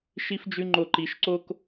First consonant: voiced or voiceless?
voiceless